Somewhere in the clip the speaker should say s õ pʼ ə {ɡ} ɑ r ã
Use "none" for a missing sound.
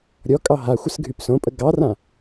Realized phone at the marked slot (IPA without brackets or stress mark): ɡ